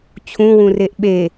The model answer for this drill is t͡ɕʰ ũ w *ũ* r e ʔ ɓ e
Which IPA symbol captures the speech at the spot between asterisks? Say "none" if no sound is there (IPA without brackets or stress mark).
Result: ũ